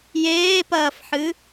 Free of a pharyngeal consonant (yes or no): no